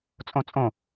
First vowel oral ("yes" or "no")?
no